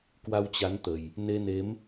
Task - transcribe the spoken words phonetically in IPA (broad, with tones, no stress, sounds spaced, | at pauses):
k w a˧ w t͡ɕ a˨˦ n t̪ ə˨˩ j | n e˧ n e˨˦ m